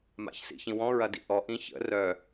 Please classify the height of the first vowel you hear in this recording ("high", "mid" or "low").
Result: low